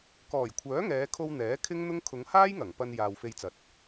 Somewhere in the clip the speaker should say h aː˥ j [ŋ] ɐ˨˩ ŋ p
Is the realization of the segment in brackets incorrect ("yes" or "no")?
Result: no